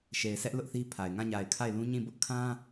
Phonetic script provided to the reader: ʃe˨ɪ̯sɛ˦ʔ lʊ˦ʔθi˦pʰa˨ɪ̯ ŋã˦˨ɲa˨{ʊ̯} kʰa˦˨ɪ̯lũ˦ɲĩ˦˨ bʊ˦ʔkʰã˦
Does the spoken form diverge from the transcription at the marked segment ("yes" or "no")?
yes